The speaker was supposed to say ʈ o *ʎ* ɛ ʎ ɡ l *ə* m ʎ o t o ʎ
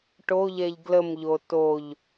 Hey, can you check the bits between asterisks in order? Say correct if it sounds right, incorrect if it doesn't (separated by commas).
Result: correct, correct